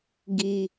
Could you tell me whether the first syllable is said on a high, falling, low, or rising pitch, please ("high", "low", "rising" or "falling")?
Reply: high